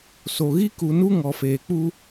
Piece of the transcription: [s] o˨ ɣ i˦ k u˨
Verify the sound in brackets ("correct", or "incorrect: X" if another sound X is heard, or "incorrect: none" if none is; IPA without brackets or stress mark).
correct